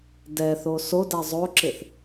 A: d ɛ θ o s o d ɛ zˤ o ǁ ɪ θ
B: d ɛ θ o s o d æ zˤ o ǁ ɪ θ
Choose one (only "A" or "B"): B